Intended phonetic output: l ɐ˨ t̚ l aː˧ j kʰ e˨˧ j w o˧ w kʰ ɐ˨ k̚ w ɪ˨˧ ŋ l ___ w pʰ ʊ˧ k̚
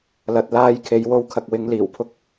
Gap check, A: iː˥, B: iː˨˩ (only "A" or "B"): B